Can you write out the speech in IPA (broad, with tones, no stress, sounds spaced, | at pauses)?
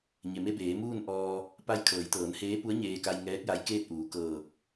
ɲ e˩ m e˧ b eː˩˧ m uː˥˨ n ʔ ɔː˧ | p a˧ j kʰ ɤː˩˧ j t̪ ɤː˩˧ n h eː˧˥ p u˧˥ ə̯ ɲ eː˧ k a˧ j ŋ ɛː˧˥ k̚ j a˧˥ j k eː˥˨ t̚ ʔ uː˩˧ k ɤː˧˩ k̚